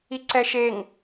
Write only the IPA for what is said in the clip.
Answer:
i ǀ ɛ ʃ e ŋ

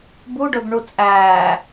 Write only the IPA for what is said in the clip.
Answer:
b u ɖ ɵ b ɳ u t͡sʼ æː

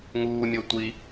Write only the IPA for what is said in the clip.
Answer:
ŋ uː mʲ o tʷ i

